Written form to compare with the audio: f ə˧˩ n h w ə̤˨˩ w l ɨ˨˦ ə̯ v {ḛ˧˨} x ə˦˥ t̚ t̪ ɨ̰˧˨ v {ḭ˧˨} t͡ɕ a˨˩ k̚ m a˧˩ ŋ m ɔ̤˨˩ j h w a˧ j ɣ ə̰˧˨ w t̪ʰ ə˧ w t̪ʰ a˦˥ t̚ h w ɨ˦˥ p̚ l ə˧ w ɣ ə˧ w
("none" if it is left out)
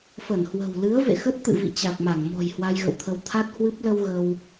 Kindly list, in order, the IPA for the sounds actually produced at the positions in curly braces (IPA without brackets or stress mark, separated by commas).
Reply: ḛ˧˨, ḭ˧˨